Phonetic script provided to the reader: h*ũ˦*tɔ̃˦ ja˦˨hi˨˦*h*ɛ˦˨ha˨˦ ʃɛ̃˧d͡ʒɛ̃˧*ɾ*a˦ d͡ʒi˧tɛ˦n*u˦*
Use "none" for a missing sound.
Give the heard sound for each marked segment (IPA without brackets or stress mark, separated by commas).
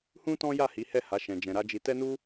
ũ˦, h, ɾ, u˦